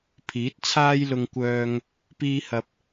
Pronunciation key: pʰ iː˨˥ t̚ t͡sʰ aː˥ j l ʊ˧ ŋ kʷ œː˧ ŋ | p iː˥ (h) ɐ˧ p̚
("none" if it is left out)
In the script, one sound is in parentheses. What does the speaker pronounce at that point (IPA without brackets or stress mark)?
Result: h